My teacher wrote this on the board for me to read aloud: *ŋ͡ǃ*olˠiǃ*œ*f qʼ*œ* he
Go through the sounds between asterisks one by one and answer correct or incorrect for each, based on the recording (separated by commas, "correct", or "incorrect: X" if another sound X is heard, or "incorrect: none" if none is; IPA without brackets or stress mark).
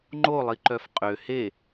correct, correct, incorrect: ø